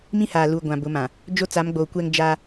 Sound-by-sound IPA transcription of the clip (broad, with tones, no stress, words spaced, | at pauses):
mĩ˦haː˨ lu˨ ɡʷã˨bʊ˨˦mã˨ | d͡ʒo˦t͡sa˨˦mɡ͡boː˨kʷɛ˦ŋ d͡ʒa˦